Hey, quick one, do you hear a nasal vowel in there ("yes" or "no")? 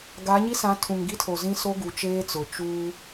yes